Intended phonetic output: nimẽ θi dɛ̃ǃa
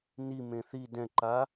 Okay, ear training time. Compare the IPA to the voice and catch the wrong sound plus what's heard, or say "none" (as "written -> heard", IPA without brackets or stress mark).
none